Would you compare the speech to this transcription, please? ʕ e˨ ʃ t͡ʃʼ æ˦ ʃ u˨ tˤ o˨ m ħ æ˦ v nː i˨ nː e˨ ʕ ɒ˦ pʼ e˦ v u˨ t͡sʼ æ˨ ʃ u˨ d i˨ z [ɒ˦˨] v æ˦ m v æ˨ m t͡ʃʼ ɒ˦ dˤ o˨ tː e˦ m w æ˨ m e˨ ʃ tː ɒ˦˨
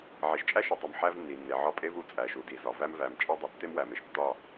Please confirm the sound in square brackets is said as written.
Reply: no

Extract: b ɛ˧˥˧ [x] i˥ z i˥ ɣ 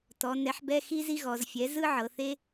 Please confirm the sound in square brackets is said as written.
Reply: yes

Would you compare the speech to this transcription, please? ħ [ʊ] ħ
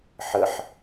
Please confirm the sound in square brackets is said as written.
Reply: no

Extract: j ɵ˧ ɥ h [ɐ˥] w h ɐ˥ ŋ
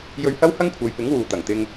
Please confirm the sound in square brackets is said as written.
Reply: yes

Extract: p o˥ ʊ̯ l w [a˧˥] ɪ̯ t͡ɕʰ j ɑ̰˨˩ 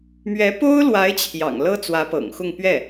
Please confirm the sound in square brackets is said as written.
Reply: yes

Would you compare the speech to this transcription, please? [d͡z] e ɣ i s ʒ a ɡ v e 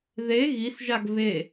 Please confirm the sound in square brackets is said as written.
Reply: no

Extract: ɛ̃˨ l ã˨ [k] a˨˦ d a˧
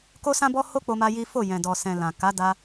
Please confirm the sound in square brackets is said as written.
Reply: yes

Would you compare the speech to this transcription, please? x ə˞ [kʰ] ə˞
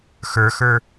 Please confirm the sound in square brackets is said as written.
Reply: no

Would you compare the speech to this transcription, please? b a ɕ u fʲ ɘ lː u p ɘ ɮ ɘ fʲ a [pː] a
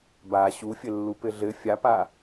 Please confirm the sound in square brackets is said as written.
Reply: no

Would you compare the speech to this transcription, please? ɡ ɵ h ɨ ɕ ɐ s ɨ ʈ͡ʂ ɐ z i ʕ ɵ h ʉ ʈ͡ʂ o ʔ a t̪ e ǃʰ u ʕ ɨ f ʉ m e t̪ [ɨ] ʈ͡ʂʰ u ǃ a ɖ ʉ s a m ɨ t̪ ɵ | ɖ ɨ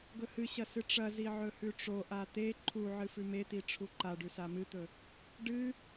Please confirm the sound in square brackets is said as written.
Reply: no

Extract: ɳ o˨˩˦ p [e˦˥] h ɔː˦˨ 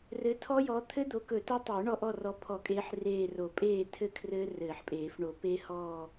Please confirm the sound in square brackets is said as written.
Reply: yes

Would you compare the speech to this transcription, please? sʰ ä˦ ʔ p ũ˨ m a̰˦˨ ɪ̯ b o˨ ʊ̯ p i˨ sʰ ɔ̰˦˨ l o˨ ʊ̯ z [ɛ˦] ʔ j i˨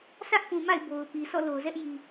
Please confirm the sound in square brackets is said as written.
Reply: yes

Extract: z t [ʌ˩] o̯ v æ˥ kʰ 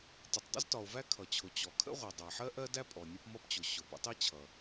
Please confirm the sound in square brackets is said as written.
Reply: no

